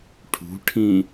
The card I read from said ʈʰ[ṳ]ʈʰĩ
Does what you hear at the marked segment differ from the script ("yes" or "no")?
no